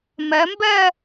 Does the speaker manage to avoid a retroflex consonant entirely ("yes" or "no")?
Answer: yes